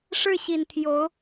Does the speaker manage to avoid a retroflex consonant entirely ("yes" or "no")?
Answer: no